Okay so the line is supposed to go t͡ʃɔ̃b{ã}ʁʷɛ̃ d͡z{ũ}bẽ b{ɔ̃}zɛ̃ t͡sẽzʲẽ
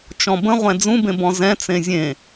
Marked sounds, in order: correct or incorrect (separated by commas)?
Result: incorrect, correct, correct